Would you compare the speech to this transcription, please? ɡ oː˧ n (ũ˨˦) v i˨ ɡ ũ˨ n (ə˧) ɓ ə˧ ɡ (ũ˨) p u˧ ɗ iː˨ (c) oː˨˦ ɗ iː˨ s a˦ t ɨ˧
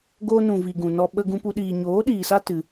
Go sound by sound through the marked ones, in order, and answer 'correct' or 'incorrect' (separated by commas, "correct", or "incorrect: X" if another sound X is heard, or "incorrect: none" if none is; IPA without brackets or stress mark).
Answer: incorrect: ũ˨, incorrect: ɔ˧, incorrect: ũ˧, incorrect: ɲ